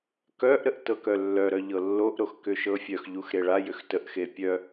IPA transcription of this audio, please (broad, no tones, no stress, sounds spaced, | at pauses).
k œ ʔ ɾ ə ʔ t ɤ k œ lː œ ɾ œ ʎ ɤ lː o ʔ ɾ o x k ʏ ʃ ɤ fʲ œ x ʎ u x ɾ e ɭ a j ʏ x t ə ʔ x e pʲ œ